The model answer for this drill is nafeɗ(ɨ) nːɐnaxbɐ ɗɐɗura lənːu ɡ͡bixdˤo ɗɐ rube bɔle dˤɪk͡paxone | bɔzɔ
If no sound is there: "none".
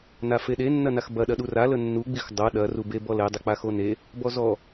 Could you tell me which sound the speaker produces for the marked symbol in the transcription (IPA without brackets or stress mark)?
e